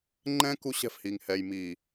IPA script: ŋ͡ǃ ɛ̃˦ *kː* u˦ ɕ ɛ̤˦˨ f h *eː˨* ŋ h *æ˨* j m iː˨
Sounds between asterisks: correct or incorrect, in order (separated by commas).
incorrect, incorrect, incorrect